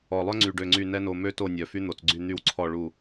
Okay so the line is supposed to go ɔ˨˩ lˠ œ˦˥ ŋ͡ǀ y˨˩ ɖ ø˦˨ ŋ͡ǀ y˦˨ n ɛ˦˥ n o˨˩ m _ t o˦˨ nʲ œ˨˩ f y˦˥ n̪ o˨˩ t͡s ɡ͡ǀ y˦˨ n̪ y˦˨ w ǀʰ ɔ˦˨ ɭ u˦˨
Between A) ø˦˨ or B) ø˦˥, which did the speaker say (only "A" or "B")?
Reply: B